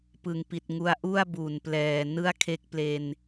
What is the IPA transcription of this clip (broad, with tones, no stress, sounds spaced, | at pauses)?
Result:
p ɯ˨˩ ŋ p i˨˩ t̚ ŋ u˧ a̯ ʔ u˥˩ a̯ b u˨˩ n p l ɛː˨˩ n ɯ˥˩ a̯ kʰ e˦˥ k̚ p l e˧ n